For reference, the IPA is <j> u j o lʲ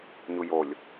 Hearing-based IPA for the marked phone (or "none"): ɲ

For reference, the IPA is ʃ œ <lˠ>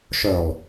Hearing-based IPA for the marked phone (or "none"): lˠ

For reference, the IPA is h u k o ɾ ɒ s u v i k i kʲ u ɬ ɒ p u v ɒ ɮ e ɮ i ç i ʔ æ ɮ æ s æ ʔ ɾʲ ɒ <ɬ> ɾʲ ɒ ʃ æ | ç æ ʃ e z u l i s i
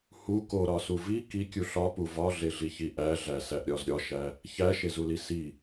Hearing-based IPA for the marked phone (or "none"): z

